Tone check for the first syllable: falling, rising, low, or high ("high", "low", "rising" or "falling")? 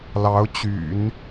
rising